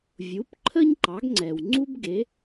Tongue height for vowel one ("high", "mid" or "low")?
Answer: high